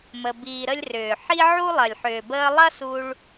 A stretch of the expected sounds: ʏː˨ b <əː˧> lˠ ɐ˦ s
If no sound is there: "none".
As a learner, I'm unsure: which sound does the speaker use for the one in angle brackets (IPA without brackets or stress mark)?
əː˧